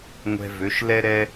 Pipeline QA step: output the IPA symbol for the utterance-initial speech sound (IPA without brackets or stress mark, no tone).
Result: ŋʷ